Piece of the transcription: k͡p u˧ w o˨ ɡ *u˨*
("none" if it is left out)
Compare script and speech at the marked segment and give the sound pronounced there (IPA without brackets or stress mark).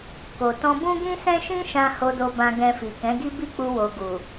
u˨